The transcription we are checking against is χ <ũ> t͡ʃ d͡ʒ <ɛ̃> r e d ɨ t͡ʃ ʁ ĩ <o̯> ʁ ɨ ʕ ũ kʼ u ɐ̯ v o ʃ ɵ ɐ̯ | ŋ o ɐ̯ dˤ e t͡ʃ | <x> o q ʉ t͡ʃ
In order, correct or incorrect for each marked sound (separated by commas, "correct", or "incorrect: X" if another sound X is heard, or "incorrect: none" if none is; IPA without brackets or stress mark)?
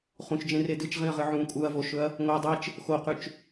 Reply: correct, incorrect: ẽ, incorrect: ɐ̯, correct